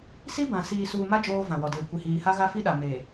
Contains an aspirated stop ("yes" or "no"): no